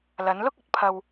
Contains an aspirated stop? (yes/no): yes